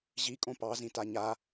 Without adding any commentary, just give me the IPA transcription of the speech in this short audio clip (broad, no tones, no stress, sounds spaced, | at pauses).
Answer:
ʑ i kʼ õ p ɑ z ĩ t a ɲ a